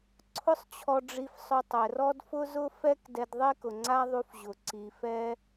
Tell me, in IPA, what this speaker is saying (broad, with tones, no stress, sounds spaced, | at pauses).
ǀʰ ʊ˥ sˤ t͡ɕʰ ɔ˧ ɖ͡ʐ i˧ f sˤ ʊ˧ tˤ ɛ˩ r ɔ˥ d f ʊ˥ z ʊ˥ f ɛ˥ k d ɛ˧ d ðˤ e˥ k ʊ˩ ŋ͡ǀ a˥ ðˤ u˧ f ʑ ʊ˩ ǀ i˩ f ɛ˧